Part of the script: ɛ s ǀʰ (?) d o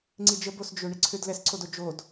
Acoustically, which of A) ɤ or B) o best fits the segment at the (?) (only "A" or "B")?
B